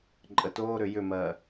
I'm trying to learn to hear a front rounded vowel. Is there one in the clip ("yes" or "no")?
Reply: yes